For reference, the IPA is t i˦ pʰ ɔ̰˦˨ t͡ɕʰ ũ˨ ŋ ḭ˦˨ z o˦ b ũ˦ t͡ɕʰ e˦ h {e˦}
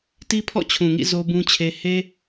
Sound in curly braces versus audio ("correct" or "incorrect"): correct